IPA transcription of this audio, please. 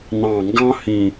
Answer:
n ɑ̃˨˩ ŋ ɡ ɑ̃˦ h ĩ˨˩

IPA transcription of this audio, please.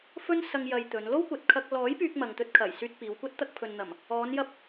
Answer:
f ɵ˥ n s ɐ˧ ŋ j ɐ˧ j t̪ ɵ˨˧ n l o˥ w kʷ ɐ˨ t̚ kʰ ɐ˧ k̚ l ɔː˨˥ j p yː˧ k̚ m ɐ˨ ŋ t̪ ɵ˧ t̚ kʰ ɐ˨˩ j s yː˧ t̚ p iː˨˧ w kʷ ɐ˥ t̚ t̪ ɐ˧ k̚ pʰ ɵ˨ n n̪ ɐ˨˩ m | ɔː˨˧ n j ɐ˧ p̚

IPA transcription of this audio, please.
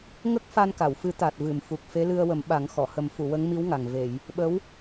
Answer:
ŋ ə˦˥ k̚ f a˧ n k a˨˩˨ w f ɨ˨˩˦ t̪ a˨˩ t̚ v ɨ˨˩˨ m f u˨˩ k̚ f e˧˥ l ɨ˧ ə̯ w ə˨˩˦ m ɓ a˨˩˦ ŋ x ɔ˨˩˨ h ə˨˩˦ m f u˨˩˨ w ə˧˥ ŋ m i˧˥ w ŋ a˨˩ ŋ v e˨˩˨ j | ɓ ə˧˥ w

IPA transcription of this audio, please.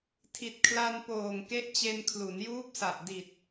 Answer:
tʰ i˨˩ t̚ kʰ l a˧ n p oː˨˩ ŋ k e˦˥ ʔ t͡ɕ e˧ n kʰ l u˩˦ n j uː˦˥ p̚ s a˨˩ ʔ d i˨˩ t̚

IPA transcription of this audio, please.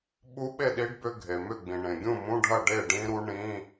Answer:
ɓ u˦˥ ɓ e˥˩ ɗ i˦˥ ɖ b ʏ˧˥˧ ɡʱ e˩ m ʏ˥˩ ɡ͡b ĩ˩ ɳ ẽ˩ ɡʲ ũ˥˩ m ũ˧˥˧ ɖʱ ɐ˥˩ ɖ e˥˩ ɖ ĩ˦˥ ɾ u˦˥ ɳ ĩ˧˥˧

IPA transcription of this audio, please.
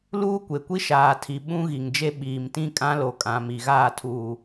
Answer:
l uː˦ kʷ e˨ kʷ i˦ ʃ aː˨ tʰ i˨ ɓ ũ˦ ɣ i˨ ŋ d͡ʒ e˦ ɓ iː˨ m t ĩ˦ kʼ ã˦ l o˨ kʼ ã˨ m i˨ ɣ aː˦˨ tʰ uː˨

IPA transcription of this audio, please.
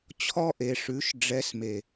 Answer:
t͡ɕʰ ɔ˦ ʔ e˨ ʂ ʉ˨˦ ʃ ɖ͡ʐ ɛ˨˦ s m e˨

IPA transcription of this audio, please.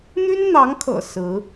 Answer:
n̪ y˥ n n̪ ɑ˧˥ ŋ kʰ ɤ̰˨˩ s ɹ̩˧˥

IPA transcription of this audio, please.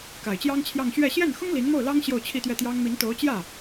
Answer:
k a˨˩ ɪ̯ t͡ɕ j ɑ˥ ŋ t͡ɕʰ j ɑ˥˧ ŋ ɕ ɥ ɛ˥˧ ɕ j ɛ˥˩ n x ʊ˥ ŋ l i˧˥ n m o˥˩ ʊ̯ l ɑ˥ ŋ ɕ j o˥˧ ʊ̯ t͡ɕʰ i˥˧ t̪ ɥ ɛ˥˩ t̪ j ɑ˥ ŋ m i˧˥ n t̪ o˧˥ ʊ̯ t͡ɕ j ä˥˩

